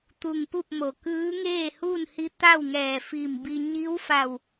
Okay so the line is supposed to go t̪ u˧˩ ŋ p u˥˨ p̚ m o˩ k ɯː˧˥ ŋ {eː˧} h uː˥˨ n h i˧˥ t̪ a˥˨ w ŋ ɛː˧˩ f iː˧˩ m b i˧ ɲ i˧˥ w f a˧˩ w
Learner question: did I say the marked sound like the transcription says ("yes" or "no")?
no